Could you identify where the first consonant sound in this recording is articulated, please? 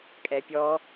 velar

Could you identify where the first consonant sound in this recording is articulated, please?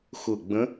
velar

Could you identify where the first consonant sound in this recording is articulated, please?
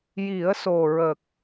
palatal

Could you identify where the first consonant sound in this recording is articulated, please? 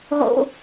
uvular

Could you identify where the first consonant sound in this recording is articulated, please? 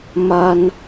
labial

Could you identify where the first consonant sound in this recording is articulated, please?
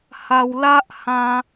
glottal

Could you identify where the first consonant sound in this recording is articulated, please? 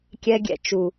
velar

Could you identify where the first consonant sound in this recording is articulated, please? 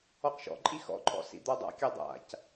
uvular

